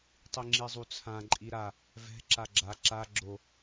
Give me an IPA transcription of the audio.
tˤ i ŋ͡ǁ i zˤ u t͡sʰ ã ǃʼ i ɾ a | v ɛ̤ ǁ a ɡ͡ǁ a ǁ a ɡ͡ǁ o

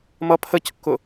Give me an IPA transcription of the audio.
m ʌ pʰ ə c kː ʊ

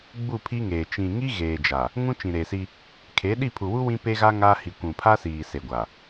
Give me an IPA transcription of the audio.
ɡ͡b u˦˨ pʰ iː˦ ŋ eː˨ t͡ʃ ĩ˨ ŋ i˦ ɣ eː˨ d͡ʒ a˨ | ŋ ũ˦ t͡ʃ ĩ˨ ɾ eː˨ s i˦ | kʰ eː˨˦ ɗ i˦˨ pʰ u˨ w u˦ w ĩ˦ p e˦ ɣ a˦ ŋ a˦ h i˨ kʷ ũ˨ pʰ a˦ s iː˨ s e˨ ɡʷ a˨

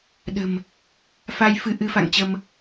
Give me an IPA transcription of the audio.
ɗ ə̤˨˩ m | f a˧ j f ɨ˧ ʔ ɨ˧ f a̰˧˨ ŋ t͡ɕ ə˧ m

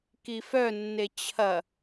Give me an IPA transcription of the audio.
k i f œ nː e t͡ɕʰ ɐ

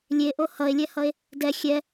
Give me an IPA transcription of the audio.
lʲ e ʔ o h ʌ e̯ lʲ ɛ h ʌ e̯ | d ɛ xʲ ɛ

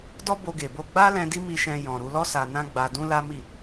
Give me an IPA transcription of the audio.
d ɔ˦ b o˧ ɡ e˨ b o˧ ɡ͡b a˦ l ɛ̃˧ d i˦ m i˧ ʃ ɛ̃˧ j ɔ̃˨ ɾ u˧ l ɔ˦ s a˧ n ã˦ ɡ͡b a˧ d ũ˦ l a˦ m i˦˨

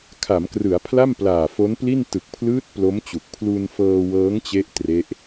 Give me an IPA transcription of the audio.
kʰ a˩˦ m k r ɯ˩˦ a̯ pʰ l a˥˩ m p l aː˨˩ f o˦˥ n p l i˥˩ n t ɯ˨˩ k̚ pʰ l ɯː˦˥ t̚ p l o˦˥ m t͡ɕ u˨˩ k̚ pʰ l u˧ n f ɤː˧ w ɤː˦˥ ŋ t͡ɕ e˦˥ ʔ t r e˦˥ ʔ

